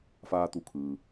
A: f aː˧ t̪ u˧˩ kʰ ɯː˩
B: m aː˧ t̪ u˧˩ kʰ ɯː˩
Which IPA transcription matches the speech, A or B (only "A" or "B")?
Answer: A